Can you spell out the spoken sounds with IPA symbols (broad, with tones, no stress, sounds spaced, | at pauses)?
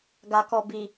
ɡ a˨ k ɔ˨ b i˨